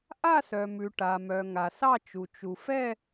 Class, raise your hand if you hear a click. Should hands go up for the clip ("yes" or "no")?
no